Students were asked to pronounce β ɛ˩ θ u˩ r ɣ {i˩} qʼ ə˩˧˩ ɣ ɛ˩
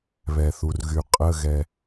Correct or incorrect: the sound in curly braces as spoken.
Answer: incorrect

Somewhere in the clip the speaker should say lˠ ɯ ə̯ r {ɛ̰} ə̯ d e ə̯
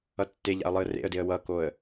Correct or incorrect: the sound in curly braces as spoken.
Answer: incorrect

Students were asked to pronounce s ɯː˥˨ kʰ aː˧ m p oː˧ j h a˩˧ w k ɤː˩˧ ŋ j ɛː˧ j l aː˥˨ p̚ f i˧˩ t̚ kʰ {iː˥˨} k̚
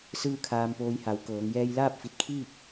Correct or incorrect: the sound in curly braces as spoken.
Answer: correct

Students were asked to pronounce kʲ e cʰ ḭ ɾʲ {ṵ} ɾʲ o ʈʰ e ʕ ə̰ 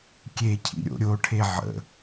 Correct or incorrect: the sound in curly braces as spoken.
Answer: incorrect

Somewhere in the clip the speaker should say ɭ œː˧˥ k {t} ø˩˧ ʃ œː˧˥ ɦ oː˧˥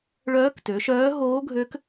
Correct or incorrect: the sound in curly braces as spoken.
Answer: correct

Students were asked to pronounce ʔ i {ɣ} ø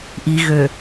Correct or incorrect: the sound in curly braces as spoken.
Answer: correct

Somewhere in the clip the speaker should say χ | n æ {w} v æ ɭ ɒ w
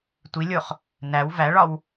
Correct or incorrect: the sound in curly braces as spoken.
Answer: correct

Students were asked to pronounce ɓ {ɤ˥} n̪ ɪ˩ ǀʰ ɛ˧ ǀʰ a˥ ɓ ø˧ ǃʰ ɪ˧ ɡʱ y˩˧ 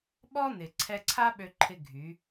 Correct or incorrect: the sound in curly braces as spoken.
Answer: incorrect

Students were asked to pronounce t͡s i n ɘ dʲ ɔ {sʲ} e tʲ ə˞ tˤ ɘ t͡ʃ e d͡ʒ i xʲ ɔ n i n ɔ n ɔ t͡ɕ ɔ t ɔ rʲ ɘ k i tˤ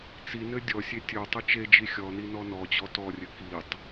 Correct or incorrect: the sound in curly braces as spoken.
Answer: correct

